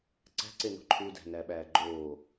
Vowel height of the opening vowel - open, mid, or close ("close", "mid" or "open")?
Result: open